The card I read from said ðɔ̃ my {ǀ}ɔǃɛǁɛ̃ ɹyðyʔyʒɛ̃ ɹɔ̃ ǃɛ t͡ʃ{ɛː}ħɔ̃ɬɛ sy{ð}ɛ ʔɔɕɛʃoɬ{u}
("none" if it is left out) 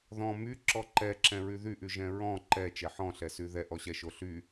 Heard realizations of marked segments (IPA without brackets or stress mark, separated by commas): ǁ, ɛ, ð, y